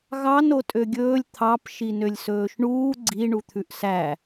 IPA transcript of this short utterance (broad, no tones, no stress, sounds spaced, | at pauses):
ɣ ɑ n o tʼ ø ɡʲ ɵː lʲ t̪ʰ ɑ p ʃ i n ø lʲ s ɵː ʃ ɳ uː ɡ͡ǀ i ɳ u t̪ʰ ʉ ʔ s æ